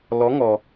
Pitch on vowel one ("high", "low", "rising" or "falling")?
rising